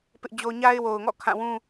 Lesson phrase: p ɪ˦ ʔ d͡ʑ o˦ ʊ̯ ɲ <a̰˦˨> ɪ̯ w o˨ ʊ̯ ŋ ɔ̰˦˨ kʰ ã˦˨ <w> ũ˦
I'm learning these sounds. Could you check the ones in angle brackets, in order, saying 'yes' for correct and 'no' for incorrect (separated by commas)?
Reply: no, yes